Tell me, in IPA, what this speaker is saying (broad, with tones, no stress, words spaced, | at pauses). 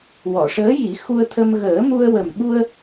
wɔ˨˩˨ʂəː˧˥ji˨˩˦ xu˧ə̯t̪ʰə˧m ɣəː˨˩˦mu˧ə̯ wə˨˩mɓu˧ə̯